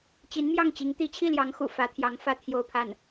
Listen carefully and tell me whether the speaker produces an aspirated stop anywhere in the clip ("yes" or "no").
yes